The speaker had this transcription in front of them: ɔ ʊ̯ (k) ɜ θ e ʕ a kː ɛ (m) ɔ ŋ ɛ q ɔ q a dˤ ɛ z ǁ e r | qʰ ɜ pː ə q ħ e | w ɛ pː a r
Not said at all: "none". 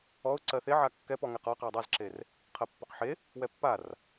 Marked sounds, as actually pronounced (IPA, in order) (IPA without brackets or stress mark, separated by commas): ǀ, p